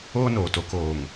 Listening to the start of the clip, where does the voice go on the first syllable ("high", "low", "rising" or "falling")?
high